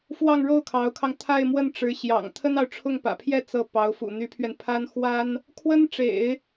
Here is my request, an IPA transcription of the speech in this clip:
f w ɑ˥˧ ŋ ɻ o˥˩ ʊ̯ kʰ ɑ˧˥ ʊ̯ kʰ ɑ˧ ŋ t̪ʰ a˥˧ ɪ̯ m w ə˥˩ n ʈ͡ʂ ɻ̩˧˥ ɕ j ɑ̰˨˩ ŋ t̪ʰ ə˥ n ɑ˨ ʊ̯ ʈ͡ʂʰ ʊ˥˩ ŋ p ä̰˨˩ pʰ j ɛ˥˧ t͡s ɤ˥˩ p ɑ˧˥ ʊ̯ f ṵ˨˩ n̪ y˧˥ pʰ ɥ ɛ˧ n pʰ a˥ n x w a˥ n | kʰ w ə˥ n ʈ͡ʂ ḛ˨˩˦ ɪ̯

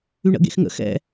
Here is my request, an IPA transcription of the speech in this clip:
y ɳ ə̰ ɡ ḛ x ŋ ə̰ x ɛ̰

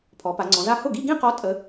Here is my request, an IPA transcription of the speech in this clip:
pʰ ɔ˩˧ p a˩˧ ŋ͡ǀ ɔ̃˩˧ z a˥˧ h ʊ˥˩ ɡ i˥˧ ɡ ĩ˥˧ q ɔ˨˥ tʼ ə˨˥

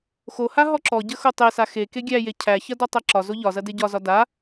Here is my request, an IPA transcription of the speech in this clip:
x o h a ɦ ɔ ǁ ɔ ɟ ə x o tˤ e s a x e k e ɡʲ æ j e cʰ æ ç ɐ d ɔ tˤ ɐ ǁ ɒ z o ʎ ɒ z ɐ d e ɟ ɒ z ɒ d a

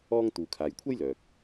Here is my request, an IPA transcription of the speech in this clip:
ɔː˥ ŋ t̪ uː˨ kʰ aː˨ j kʷʰ ɐ˥ j l œː˨ k̚

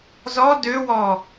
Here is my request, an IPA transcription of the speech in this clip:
z ɔ d ø w ɔ

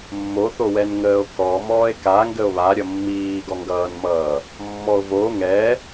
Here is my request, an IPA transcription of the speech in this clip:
mː o θ o w ɛ n ŋ əː o̯ k ɔ m ɔː e̯ k a ŋ ɡ ə o̯ β a ɾʲ ʌ mː iː ɡ ɔ ŋ ɡ ʌː n m ʌː | mː ɔ o̯ v o ŋ ɛ

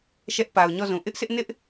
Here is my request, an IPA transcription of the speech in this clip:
ʃ ɛ˦ ʔ p a˨ ʊ̯ ɲ ɔ˦˨ z ũ˨ ʔ ɪ˦ ʔ s ɪ˦ ʔ n ɪ˦ ʔ

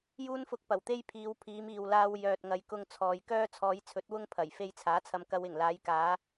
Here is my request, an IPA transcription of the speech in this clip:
j uː˥ n f ʊ˧ k̚ p ɐ˨˩ w t̪ e˥ j pʰ iː˨˧ w pʰ iː˨˧ m iː˨ w l aː˧ w j œː˨ t̚ ŋ ɐ˨˧ j k ʊ˧ ŋ t͡sʰ ɔː˨ j k œː˥ t͡sʰ ɔː˨˧ j t͡sʰ ɵ˨˥ t̚ w ʊ˥ ŋ pʰ ɐ˨˩ j f e˧ j t͡sʰ aː˨˥ t͡sʰ ɐ˧ m k ɐ˧ w ɪ˨˩ ŋ l aː˨˧ j k aː˨˧

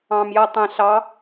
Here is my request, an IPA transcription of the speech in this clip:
ɑ̃ m j ʌ tˤ ɛ̃ ɬ ɑ

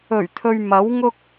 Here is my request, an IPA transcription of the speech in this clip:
ɵ˨˩ ɥ t̪ʰ ɵ˨ ɥ m ɐ˨˥ w ŋ ʊ˥ k̚

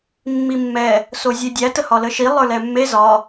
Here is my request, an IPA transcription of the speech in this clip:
mː i mː ɛ | s o zʲ e dʲ æ t ə h ɒ l ə ʃ i lˠ ə˞ l ɛ mː e z ɒ

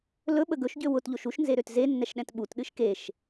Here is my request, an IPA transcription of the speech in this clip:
l ɵ ɓ ə ɡ ɵ ʃ ɟ ø w ʊ t ʎ o ʃ u ʃ n z e ɾ ø t z e nː ɛ ʃ ɗ ɛ̃ t ɓ u t ɗ ɨ ʃ k e ʃ

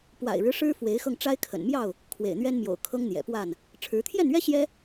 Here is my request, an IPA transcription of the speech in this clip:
p w a̰˨˩ ɪ̯ ɻ ɻ̩˦ ʂ ɻ̩˦ f w e˨˦ ɪ̯ x ɤ˧ ŋ ʈ͡ʂ a˦ ɪ̯ kʰ ə̰˨˩ n m j ɑ˥˨ ʊ̯ | kʰ w ḛ˨˩ ɪ̯ n̪ ɥ ɛ˦ n m j o̰˨˩ ʊ̯ kʰ ɤ˦ ŋ n̪ j ɛ̰˨˩ p w a˥˨ n | ʈ͡ʂʰ ɻ̩˨˦ t̪ʰ j ɛ˥˨ n ɥ ɛ˦ ɕ j ɛ˦

